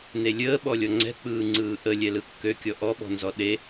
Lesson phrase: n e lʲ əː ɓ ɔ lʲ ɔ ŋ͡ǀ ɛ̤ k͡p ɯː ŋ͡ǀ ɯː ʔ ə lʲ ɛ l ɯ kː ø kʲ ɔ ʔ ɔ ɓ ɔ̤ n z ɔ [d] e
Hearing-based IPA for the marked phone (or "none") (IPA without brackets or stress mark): ɗ